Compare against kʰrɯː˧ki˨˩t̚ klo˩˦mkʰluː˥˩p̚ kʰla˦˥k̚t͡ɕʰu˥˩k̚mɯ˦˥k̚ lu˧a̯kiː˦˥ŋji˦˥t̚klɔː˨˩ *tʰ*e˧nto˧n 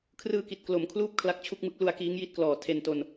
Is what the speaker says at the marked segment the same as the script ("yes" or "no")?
yes